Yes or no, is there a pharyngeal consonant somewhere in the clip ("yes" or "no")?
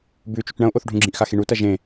no